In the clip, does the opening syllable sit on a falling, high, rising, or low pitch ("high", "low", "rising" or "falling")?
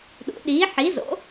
rising